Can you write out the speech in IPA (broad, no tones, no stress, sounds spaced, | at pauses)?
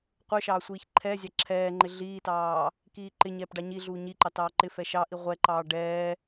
qʷ ə˞ ʃ ɑː sʷ iː ç ǃʰ ɛː zʲ ɑ ǁʰ ɛː ŋ͡ǃ ɪ ɮ iː t ɑː | k iː ǃ ɪ ɲ ɛː p ɖ ɑ ɲ i ɮ uː ɲ i ǃ ɑ t ɑː ǃ ɪ f ɛ ʃ ɑ ʔ i ʁʷ ɛ ǃ ɑː ɖ ɛː